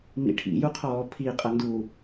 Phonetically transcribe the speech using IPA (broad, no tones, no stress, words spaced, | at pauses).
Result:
mḭʈʰḭ juqʰɔːpʰi qʼɐndu